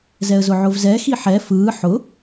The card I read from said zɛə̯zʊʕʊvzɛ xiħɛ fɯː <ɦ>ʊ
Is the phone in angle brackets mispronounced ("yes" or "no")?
yes